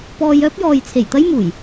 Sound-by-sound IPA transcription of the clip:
p ɔː˧ j œː˥ p̚ j ɔː˨ j t͡sʰ e˨˩ j t̪ ɐ˥ j m uː˨˩ j

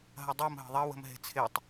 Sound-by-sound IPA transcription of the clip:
ɦ ɐ dˤ ɤ m ɦ ə̤ ðˤ ɐ w ə̤ m ɦ e̤ t͡sʰ ɪ tˤ

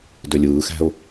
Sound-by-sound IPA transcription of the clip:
d ø lʲ ɯː x æ̤ ʊ̯

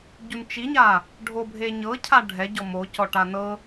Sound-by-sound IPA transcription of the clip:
ɟ u n t͡ʃ i ɲ a | ɖʱ o bʱ e ɲ ɤ cʰ a ɖʱ ɛ ɟ ɔ m o c ɔ ʈ a n ɤ

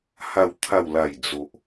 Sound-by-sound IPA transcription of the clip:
h a˨˩ w t̪ʰ a˨˩ w l a˨˩ j d͡z o˨ ʔ

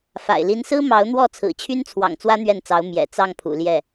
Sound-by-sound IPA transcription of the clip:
f a̰˨˩ ɪ̯ l i˧˥ n s ɹ̩˥ m ɑ˧˥ ʊ̯ n̪ w ɔ˥˩ t͡sʰ ɹ̩˨˩ t͡ɕʰ y˥ n t͡sʰ w ɑ̰˨˩ ŋ t͡s w ä˥ n̪ ɥ ɛ˥˩ n t͡s ɑ˧˥ ʊ̯ m j ɛ̰˨˩ t͡s ɑ˥˩ ŋ pʰ ṵ˨˩ l j ɛ˥˩

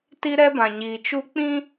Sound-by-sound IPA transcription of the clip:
t i˦ ɾ ɛ˦ b ã˨ ɲ iː˨ t͡ʃ u˦ k͡p ĩ˦

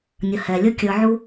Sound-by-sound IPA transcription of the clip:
nʲ ə˨ h ɛ˨ lʲ ə˞˦ kʲ ə˞˧ ʕ u˦

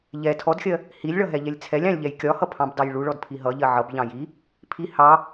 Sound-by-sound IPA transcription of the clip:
ʎ ɛ tʰ ɔ d xʲ ɜ | h i lʲ ɭ ʌ ɦ ɛ ʎ ɛ lʲ t͡sʰ ɛ lʲ ɑ̃ lʲ ʎ ɛ j kʲ ɒ h ʌ pʰ ɑ̃ b d ɑ j ɭ u ɭ ɔ d pʰ i ɦ ʌ ʎ ɜ ʕ ʌ b ʎ ɑ̃ j i | pʰ i h ɑ

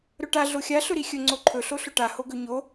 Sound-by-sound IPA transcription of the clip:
ɾ ɵ ʈ a ɮ o xʲ a ɬ ɵ ɾ i xʲ ɵ ŋ͡ǀ o ǃʰ ɵ ɬ o ɬ ɵ ʈ a h o ɡ ɵ ɲ o

